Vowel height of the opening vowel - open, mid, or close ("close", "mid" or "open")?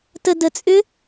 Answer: mid